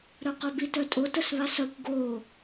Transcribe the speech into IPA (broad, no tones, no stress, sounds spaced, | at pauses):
ɾ œ q œ b i t œ tʼ o t ə s β a s ɐ kʷ ɡ o